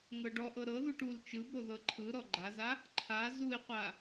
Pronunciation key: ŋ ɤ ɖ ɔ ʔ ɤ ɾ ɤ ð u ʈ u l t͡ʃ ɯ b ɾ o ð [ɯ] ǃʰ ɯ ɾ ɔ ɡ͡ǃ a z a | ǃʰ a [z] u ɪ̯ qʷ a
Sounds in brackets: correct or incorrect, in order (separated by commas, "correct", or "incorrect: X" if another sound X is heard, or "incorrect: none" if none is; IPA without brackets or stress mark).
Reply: incorrect: ɤ, correct